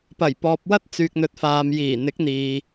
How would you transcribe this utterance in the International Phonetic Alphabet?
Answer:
p ɐ˨˩ j p ɔː˨ p̚ w ɐ˥ t̚ t͡s yː˨ k̚ n̪ ɵ˨ t̚ f aː˨ m j iː˨˩ n̪ ɪ˨˥ k̚ n̪ iː˨

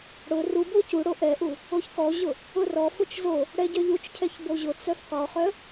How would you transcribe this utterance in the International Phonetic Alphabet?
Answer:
ɽ ʊ r u b o c u ɽ o ʔ ɛ ʔ u | o ç k ɔ ʑ ʊ | ʊ r ɔ f ʊ t͡ʃ z o | ɽ ɛ ɟ œ ʎ u t͡ʃ cʰ ɛ ç b o ʑ ʊ t͡s œ f q ɔ χ œ

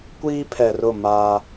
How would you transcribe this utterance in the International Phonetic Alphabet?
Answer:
kʷ iː˦ pʰ ɛ˨ r ʊ˦˨ m aː˦

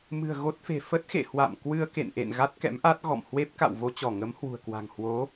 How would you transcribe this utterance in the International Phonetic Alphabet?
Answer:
m ɨ̤˨˩ ə̯ ɣ o˦˥ t̚ f e̤˨˩ f ə˦˥ t̚ x ḛ˧˨ h w a̰˧˨ m k w ɨ˧ ə̯ k ḛ˧˨ n ʔ ḛ˧˨ n ɣ a˦˥ t̚ k ɛ̰˧˥ m ʔ a˦˥ t̚ ɣ ɔ̰˧˨ m h w e˦˥ p̚ k a̰˧˨ w v o˧ t͡ɕ ɔ˧˩ ŋ ə˨˦ m h w ṳ˨˩ ə̯ k w a̤˨˩ ŋ h w o˨˦

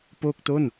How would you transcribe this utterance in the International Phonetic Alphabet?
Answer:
p oː˥˩ k̚ t o˥˩ n

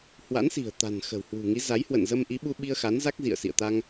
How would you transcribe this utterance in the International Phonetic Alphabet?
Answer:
h w a̰˧˥ n s i̤˨˩ ə̯ t̪ a̤˨˩ n x ə̤˨˩ w h w ṳ˨˩ ŋ i˨˦ z a˨˦ j h w ə̰˧˨ n z ə˧ m ʔ i˨˦ ɓ u˧ ɓ i˧ ə̯ x a˨˦ n z a˦˥ k̚ z ḭ˧˨ ə̯ s ḭ˧˨ ə̯ t̪ a˧ ŋ

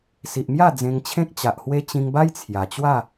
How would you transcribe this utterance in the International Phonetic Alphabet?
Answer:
s i˨ ʔ m j a˥˧ d͡z ẽ˧ ŋ t͡ɕʰ ẽ˦ k̚ t͡ɕ a˨ ʔ h w e˦ t͡ɕ ĩ˧ ŋ b a˦ j t͡sʰ j a˨˩ t͡ɕ w a˥˧

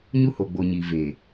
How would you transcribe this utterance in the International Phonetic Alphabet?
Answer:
ɲ u˦ h o˨ ɡ͡b o˨ ɲ i˨ v eː˨

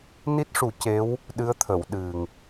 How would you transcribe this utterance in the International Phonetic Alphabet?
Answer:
n i˦˥ t̚ ʂ u˨˩˦ c e˧˥ w | ɗ ɨ˧˥ ə̯ t̪ʰ ə˨˩˨ w ɗ ɨ˨˩ ŋ

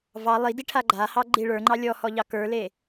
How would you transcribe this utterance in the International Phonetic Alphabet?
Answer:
v ɑ lˠ i d i ʈʰ a ɡ͡ǃ a h ɑ ɡ͡ǃ i ɭ ə˞ ŋ͡ǃ ɑ lʲ ɔ h ɔ ʎ ɑ k ə˞ l e

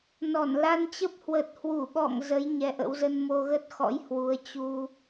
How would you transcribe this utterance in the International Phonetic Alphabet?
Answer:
n ɔ˧˩ n l a˧ n t͡ɕ ə˦˥ p̚ h w ə˨˩ t̚ h w u˧˩ ɓ ɔ̰˧˨ ŋ z ə˨˦ j ɲ ɛ˧ ʔ ə̰˧˥ w z ə˧ n m o˧ ɣ ə˦˥ t̚ x ɔ̰˧˥ j h w u˨˦ ə̯ t͡ɕ u˧

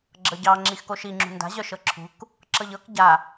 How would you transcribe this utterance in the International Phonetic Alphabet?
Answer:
ɡ͡ǁ ɤ ɟ ɑ ŋ͡ǁ i x k o ʃ i ŋ͡ǁ ṳ n d a̤ ʑ œ ʃ ɤ ǁʰ ṳ k | ǁ ɤ ʎ ɤ k ɟ a

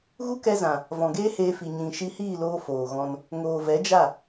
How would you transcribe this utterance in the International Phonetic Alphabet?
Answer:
ɣ u˦ k ɛ˧ z ã˨ | v ɔ̃˨ ɡ eː˦ h eː˧ f i˨ ɲ ĩ˧ ʃ i˧ h iː˦˨ l oː˧ f oː˨ ɣ ɔ̃˧ n | ŋ oː˨ v ɛ˨˦ d͡ʒ a˦˨

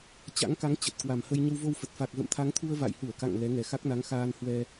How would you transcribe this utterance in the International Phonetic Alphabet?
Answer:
t͡ɕ a̰˧˥ ŋ k a˨˦ ŋ t͡ɕ ə˨˩ t̚ k w a˨˩ m h ə˧ j ɲ ə˧ w v o˧ w f ə˨˩ t̚ f a˨˩ k̚ ɣ ə̰˧˨ m t̪ʰ a˨˦ ŋ t̪ʰ u˧ ə̯ v a̰˧˨ j h u˧˩ ə̯ k a̰˧˨ ŋ l ɛ˨˦ ŋ ɛ˨˩ x a˦˥ k̚ n a˨˦ ŋ x aː˧ n h w ɛ˧

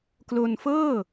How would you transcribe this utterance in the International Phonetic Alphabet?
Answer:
k l o˧ n f ɤː˥˩

